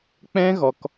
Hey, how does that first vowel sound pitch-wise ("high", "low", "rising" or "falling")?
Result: high